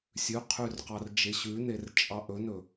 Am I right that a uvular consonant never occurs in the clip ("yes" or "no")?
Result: no